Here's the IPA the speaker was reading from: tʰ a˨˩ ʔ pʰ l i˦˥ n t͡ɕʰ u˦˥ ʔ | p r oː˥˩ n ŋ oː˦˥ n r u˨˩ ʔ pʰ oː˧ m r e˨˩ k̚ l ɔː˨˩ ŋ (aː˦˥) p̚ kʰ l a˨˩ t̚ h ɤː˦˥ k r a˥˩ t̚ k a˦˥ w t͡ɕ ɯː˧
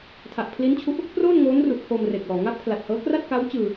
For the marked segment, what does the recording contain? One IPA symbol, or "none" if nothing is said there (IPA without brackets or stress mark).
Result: a˦˥